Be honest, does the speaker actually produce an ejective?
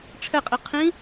yes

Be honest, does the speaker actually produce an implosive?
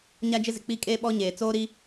yes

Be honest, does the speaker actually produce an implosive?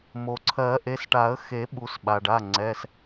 yes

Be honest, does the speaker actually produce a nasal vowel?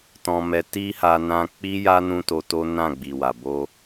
yes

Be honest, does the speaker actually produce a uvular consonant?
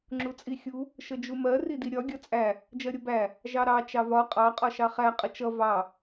yes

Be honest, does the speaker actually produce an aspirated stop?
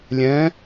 no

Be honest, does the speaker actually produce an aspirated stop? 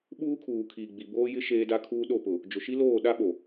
yes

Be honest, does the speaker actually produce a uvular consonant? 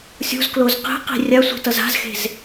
yes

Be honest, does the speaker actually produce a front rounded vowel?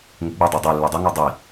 yes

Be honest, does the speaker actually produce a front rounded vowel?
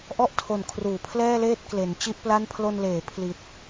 no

